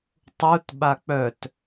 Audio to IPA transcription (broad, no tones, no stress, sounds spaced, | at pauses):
tˤ u t ɓ a k͡p œ t